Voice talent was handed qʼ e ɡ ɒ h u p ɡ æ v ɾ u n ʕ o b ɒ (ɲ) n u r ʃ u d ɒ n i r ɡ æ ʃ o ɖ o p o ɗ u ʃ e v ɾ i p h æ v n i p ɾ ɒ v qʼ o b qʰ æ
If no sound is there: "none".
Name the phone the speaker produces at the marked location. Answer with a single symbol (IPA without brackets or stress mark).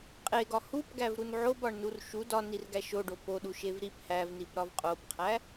ɳ